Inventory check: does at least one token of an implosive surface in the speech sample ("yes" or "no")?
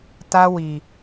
no